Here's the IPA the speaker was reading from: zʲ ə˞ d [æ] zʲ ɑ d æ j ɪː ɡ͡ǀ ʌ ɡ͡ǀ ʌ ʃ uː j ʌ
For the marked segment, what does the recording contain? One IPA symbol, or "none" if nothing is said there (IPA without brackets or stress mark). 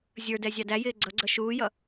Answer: ɛ